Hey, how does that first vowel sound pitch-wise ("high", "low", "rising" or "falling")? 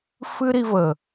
high